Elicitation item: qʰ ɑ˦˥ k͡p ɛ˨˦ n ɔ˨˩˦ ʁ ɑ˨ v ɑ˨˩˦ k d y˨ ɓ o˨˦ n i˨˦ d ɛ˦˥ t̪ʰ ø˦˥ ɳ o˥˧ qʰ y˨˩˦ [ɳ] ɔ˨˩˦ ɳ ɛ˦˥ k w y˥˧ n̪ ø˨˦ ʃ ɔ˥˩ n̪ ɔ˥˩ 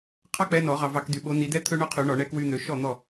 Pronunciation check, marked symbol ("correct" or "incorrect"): correct